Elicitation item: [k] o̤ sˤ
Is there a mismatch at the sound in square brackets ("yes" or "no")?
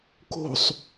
no